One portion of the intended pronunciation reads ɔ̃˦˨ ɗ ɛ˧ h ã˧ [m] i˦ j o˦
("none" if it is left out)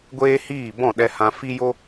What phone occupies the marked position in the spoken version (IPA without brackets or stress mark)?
f